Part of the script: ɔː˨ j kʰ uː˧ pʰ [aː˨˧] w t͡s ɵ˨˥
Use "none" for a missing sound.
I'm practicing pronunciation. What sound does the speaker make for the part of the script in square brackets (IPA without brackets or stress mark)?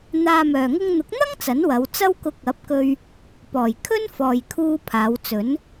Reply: aː˨˧